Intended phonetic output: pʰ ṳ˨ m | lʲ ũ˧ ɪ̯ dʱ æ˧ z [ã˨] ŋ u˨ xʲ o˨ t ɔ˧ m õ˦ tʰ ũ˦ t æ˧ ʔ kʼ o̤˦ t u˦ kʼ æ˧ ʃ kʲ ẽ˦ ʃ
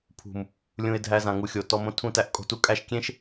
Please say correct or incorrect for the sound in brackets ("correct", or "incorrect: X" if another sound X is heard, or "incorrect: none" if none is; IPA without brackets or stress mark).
correct